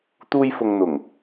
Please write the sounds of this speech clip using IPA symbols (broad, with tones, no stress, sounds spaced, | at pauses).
t̪ uː˧ j f ʊ˨ ŋ n̪ ʊ˨˩ ŋ